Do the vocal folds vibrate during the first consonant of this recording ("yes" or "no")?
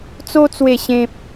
no